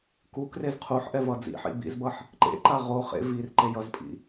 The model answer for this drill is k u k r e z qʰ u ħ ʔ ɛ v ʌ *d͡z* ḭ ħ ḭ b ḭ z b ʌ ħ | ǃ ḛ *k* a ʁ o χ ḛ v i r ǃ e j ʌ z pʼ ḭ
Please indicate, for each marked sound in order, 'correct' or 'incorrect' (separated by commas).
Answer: correct, incorrect